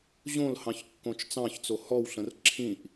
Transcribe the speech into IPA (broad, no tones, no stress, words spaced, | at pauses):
ʑõlhɑ̃ç kːõt͡ʃt͡sɑ̃çt͡so hɔwɬə̃r ǁʰĩʔ